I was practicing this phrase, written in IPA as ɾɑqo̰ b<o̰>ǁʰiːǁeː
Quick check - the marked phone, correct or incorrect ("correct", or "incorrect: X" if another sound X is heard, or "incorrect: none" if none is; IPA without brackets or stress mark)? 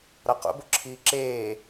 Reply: incorrect: o